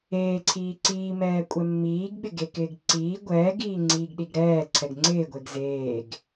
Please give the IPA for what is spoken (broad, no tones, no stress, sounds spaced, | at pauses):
eː ǀʰ iː ǀ iː m ɛː kʷʼ ɛ mː iː ɡ ɓ ɪ ɡ e k ɪː ɡ ǀ iː ɡʷ ɛː ɡ iː ŋ͡ǀ iː ɡ ɗ i ɡ ɾ ɛː ǀʰ ɛ ɡ ŋ͡ǀ ɪː ɡʷ e ɡ z eː ɡ